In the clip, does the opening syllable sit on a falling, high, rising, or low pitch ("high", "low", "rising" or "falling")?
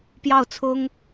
falling